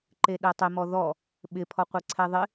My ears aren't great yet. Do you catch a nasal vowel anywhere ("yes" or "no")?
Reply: no